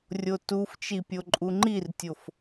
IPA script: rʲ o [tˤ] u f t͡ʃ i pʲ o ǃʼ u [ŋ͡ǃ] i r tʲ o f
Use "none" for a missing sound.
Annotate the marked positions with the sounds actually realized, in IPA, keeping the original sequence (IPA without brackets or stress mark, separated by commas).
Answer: t, ŋ͡ǃ